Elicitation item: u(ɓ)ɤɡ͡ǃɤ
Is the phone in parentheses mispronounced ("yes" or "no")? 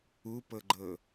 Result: yes